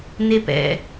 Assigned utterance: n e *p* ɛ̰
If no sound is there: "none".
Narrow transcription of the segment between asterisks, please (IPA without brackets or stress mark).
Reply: p